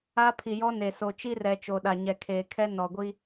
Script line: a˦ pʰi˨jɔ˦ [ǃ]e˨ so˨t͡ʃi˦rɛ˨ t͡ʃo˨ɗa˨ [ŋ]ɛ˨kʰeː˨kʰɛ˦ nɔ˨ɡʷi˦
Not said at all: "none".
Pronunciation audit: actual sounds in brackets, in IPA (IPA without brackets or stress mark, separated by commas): n, ɲ